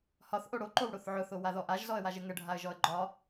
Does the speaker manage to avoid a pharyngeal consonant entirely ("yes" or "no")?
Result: no